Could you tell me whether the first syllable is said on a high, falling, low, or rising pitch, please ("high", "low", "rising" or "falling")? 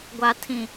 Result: low